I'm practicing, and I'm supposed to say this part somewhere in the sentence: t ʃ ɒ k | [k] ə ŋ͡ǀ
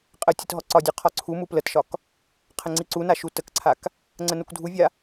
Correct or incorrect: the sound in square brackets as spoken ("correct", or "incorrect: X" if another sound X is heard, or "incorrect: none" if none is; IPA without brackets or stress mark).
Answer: incorrect: qʰ